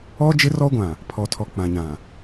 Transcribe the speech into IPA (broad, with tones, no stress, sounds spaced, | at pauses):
ɔ˦ d͡ʒ ɪ˦ r ɔ˦ ɡʷ ã˨ | pʰ ɔ˨ tʰ ɔ˨ k͡p ã˨ ɲ ã˨